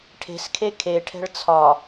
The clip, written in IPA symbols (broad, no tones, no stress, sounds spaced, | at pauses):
ʈʰ e̤ s kʰ e kʰ e ʈʰ ɛ̤ ɭ t͡sʰ ɒ